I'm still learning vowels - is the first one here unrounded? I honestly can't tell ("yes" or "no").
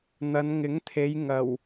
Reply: yes